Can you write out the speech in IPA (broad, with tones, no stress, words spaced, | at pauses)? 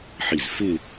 ħi˧˩z fɪ˥˧